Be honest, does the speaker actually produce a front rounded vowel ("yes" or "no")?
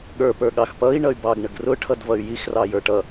yes